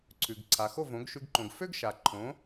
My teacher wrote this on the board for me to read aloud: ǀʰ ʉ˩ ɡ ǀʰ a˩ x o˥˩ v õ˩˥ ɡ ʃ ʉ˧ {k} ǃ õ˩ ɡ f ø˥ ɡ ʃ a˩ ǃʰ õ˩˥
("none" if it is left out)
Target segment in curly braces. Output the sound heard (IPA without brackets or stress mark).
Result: ɡ